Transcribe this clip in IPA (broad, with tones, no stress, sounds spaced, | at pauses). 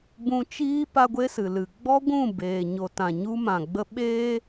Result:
b ũ˧ t͡ʃ iː˦ p a˦ ɡʷ e˦ s ɨ˨ l ɨ˨ ɡ͡b ɔ˦ ɡʷ ũ˦˨ b eː˨ ɲ o˨ t ã˨ ɲ u˧ m ã˨ ɡ͡b ə˧ ɓ eː˦